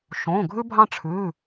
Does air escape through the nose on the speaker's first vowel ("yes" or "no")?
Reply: yes